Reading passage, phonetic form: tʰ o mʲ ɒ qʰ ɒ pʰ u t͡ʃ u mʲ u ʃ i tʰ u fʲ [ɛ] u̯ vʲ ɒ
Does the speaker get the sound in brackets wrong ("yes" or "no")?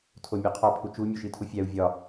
yes